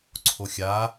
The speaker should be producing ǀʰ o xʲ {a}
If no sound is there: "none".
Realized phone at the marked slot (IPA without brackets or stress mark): a